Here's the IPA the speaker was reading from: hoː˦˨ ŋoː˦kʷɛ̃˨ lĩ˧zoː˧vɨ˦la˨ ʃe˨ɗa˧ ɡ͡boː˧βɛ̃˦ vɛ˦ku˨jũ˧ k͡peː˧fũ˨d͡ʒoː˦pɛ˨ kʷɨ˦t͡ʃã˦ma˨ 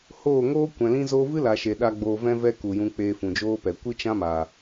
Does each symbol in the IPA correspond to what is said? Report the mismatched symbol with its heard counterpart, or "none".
β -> v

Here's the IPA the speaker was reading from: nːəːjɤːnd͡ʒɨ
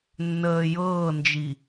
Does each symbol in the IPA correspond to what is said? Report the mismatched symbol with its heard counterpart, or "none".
ɨ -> i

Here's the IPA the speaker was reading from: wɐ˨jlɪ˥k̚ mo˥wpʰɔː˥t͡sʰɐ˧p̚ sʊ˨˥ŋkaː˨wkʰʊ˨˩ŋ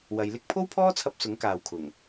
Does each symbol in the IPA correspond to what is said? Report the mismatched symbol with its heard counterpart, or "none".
m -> pʰ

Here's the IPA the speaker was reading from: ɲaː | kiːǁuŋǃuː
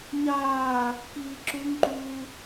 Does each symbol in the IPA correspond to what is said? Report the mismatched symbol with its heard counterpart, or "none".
none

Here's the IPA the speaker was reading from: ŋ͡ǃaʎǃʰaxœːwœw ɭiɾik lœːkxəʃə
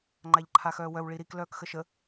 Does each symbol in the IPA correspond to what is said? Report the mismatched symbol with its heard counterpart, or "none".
none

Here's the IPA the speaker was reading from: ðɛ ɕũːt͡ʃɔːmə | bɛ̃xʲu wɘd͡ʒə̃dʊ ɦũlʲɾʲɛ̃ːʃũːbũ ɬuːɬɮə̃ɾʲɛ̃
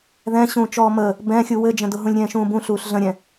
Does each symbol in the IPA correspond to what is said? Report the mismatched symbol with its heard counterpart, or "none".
ɛ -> ɛ̃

